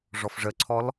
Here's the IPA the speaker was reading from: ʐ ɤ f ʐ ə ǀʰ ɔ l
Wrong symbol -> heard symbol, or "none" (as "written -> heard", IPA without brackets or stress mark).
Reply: ɤ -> ɔ